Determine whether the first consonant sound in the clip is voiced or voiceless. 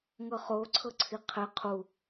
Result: voiced